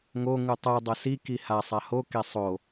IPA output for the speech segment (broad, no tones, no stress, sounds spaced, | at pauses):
ŋ o ŋ u tˤ ɯ dˤ ʌ s i k i h a sˤ a h o k e sˤ o